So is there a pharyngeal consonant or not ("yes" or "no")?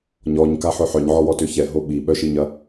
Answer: yes